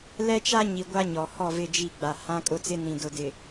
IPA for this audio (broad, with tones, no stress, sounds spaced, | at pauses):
l ɛ˦ t͡ʃ a˦ ɲ i˨ ɡʷ a˦ ɲ ɔ˨ h ɔ˦˨ v ɪ˦˨ d͡ʒ i˦˨ ɡ͡b a˨ h ã˦ kʼ ʊ˦ t͡s ɪ˦ n ĩ˨ d ʊ˨ d ɪ˨